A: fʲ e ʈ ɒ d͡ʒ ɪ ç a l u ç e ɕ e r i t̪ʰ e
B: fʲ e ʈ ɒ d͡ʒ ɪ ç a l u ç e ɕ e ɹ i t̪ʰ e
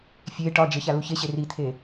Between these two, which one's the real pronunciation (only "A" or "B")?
A